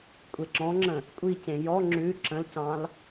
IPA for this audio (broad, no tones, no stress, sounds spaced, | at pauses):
kʷʼ e ǁ ɔ̃ ŋ͡ǁ ə̃ | kʷʼ i c ẽ j ɔ ŋ͡ǁ ʉ ǁ ə̃ l c ɑ̃ l